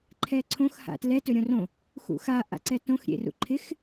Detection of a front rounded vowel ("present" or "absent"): absent